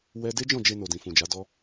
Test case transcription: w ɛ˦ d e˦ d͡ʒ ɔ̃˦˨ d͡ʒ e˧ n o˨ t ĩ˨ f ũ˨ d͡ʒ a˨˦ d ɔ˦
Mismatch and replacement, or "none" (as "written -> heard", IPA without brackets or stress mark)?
t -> d